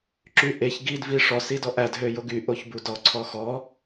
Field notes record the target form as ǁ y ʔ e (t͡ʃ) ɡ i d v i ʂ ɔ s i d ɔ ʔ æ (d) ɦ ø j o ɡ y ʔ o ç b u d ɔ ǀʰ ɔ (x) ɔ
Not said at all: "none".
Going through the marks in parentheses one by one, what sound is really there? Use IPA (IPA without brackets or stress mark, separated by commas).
ç, d, x